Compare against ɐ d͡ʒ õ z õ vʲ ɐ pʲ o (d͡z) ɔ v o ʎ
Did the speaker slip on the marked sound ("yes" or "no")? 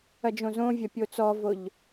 yes